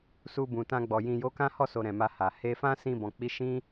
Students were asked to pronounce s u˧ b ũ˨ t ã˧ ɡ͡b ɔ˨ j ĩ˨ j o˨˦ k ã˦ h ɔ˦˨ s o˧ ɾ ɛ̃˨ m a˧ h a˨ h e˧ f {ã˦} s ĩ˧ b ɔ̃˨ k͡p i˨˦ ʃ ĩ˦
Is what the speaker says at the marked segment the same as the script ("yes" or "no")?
yes